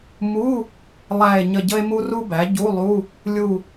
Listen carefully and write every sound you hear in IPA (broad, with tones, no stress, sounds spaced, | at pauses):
m u˧˥˧ | lˠ æ˦˨ e̯ ɲ ə˦˨ ɟ ə˥ e̯ m u˥ r u˥ b æ˩˥ ɟ u˧˥˧ lˠ u˧˥˧ | lʲ u˦˨